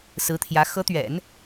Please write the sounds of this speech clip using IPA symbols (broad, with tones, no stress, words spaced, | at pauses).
sɹ̩˧˥t̪ʰjä˧˥ xɤ˧˥t̪ɥɛ̰˨˩˦n